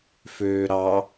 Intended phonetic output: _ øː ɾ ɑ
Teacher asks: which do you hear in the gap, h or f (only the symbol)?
f